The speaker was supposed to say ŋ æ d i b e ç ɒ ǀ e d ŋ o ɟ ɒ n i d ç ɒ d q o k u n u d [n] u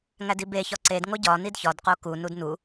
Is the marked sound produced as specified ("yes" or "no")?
yes